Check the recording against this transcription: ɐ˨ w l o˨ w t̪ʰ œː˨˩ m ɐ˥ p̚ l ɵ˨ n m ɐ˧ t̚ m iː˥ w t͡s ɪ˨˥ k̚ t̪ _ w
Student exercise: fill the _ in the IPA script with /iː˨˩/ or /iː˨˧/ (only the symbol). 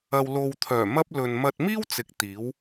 iː˨˧